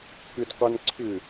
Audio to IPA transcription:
k ʏ d qʷ a n ǀʰ ʏ

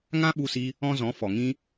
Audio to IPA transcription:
ŋ ã˦ ɓ u˧ s i˧ | ɔ̃˦ z ɔ̃˨˦ f ɔ˨ ŋ ĩ˦

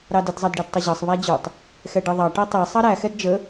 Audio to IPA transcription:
ɾ ɑ d ə d zˤ ɑ d ɖ ɛ d tˤ ʌ ʑ ɑ sˤ β æ d͡ʑ ʊ tˤ | x ɛ ɖ i ðˤ ɑ ʈ ɜ tˤ ɛ sˤ ɑ ɾ æ x ɛ d d͡ʒ ə

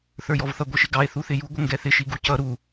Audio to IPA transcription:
θ ə˞ j ɔ v θ ʌ ɡʷ i ʃ ɪ ɡ ɑ e̯ θ u θ ɪ j u ɡʷ ə ŋ ɡ ɛ θ ɪ ʃ i ɡ u c ʌ ɾ u

